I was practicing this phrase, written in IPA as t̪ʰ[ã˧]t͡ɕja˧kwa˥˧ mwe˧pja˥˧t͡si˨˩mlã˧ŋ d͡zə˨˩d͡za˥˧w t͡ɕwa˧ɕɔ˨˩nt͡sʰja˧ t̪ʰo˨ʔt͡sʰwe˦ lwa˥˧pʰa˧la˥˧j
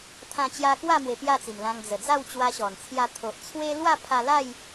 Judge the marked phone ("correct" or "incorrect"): correct